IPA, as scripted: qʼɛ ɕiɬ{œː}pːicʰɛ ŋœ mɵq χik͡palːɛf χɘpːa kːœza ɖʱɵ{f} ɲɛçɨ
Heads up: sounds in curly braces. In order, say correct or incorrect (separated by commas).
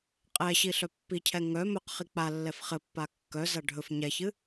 incorrect, correct